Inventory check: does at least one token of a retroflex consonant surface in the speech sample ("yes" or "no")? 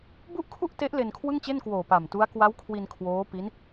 no